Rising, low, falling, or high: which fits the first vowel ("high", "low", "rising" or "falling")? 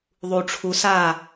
low